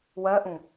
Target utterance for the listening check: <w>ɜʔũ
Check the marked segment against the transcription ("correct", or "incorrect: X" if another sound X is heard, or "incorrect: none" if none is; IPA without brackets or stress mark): correct